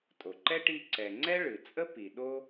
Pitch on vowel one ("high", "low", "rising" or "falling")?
low